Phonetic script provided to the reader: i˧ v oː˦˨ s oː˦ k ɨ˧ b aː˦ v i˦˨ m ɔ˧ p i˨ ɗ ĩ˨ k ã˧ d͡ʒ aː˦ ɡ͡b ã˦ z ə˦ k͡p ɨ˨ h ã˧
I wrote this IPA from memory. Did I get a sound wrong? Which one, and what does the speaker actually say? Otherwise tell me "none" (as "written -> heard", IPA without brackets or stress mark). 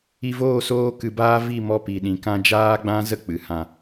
none